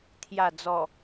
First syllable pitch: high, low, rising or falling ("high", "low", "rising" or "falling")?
low